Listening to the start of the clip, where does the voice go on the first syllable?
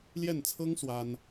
falling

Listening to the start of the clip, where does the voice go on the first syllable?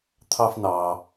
high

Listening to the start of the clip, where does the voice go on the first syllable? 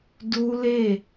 high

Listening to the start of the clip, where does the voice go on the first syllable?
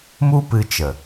high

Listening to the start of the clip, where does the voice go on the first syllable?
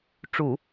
low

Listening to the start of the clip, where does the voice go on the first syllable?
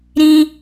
high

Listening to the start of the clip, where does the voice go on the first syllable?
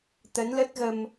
rising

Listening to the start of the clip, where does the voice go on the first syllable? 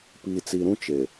low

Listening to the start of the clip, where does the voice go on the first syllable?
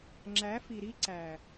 rising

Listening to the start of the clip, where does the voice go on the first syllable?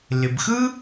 low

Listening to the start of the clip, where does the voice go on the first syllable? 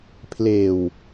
low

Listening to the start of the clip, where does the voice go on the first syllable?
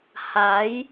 rising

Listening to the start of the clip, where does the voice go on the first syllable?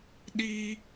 high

